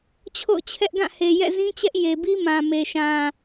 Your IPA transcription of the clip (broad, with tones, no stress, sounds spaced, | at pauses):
t͡ɕʰ o̰˦˨ ʊ̯ t͡ɕʰ ɛ˦ ʔ ɡ ã˦˨ h e˨ j ɛ̰˦˨ z ĩ˦ t͡ɕ ɛ˦ ʔ j e˨ b i˦ m ã˨ m e˨ ʃ ã˨